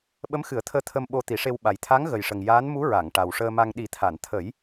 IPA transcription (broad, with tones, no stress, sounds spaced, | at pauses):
ɓ ə˧˥ m x ɨ˨˩˦ ə̯ t̪ʰ əː˧ t̪ʰ ə˧ m ɓ o˧ t̪ i˨˩˦ ʂ e˧ w ɓ a˨˩ j t̪ʰ a˧˥ ŋ ɣ ə˨˩ j ʂ ə˨˩ ŋ j aː˧˥ n m u˧˥ ɹ a˨˩˨ ŋ ʈ a˨˩ w ʂ əː˧ m a˧ ŋ ɗ i˨˩˦ t̪ʰ a˨˩˨ n t̪ʰ ə˨˩˦ j